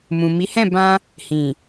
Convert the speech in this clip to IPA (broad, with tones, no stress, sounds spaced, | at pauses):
m ũ˨ m i˨˦ h ɛ̃˦˨ b ã˧ | h ĩ˨